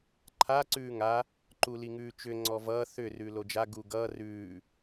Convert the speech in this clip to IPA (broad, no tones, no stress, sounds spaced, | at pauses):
ǃʰ a ǀ ʉː ŋ a | ǃ u l i ŋ ʉː t͡ʃ ʏ ŋ͡ǀ ɔ v ʌː θ ʏ r ʉː l o d͡ʒ a ɡ uː ɡ ʌː r ʉː